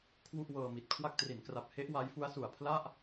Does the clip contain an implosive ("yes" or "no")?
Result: no